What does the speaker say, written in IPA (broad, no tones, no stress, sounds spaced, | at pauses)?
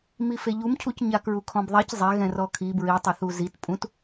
m i f e ʎ u m cʰ u c ɲ a k ɹ u kʰ ɔ̃ b ðˤ e c zˤ ɛ ɣ ɛ̃ r ɔ kʰ i b ɹ i tˤ ɛ θ u z i t pʼ ũ t